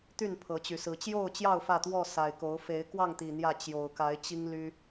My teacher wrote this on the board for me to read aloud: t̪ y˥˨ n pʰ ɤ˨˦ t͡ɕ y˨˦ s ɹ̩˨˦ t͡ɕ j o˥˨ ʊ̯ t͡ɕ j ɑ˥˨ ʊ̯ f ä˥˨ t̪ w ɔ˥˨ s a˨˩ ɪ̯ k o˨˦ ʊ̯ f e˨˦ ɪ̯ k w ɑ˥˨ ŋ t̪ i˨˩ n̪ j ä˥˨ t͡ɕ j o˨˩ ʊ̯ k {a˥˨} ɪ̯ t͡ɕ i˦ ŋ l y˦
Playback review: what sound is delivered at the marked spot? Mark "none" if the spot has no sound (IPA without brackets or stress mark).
a˨˦